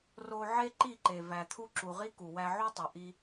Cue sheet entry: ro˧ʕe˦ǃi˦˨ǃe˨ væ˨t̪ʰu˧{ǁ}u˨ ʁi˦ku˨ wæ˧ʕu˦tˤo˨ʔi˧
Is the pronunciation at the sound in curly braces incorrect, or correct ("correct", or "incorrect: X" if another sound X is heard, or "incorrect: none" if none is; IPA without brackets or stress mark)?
correct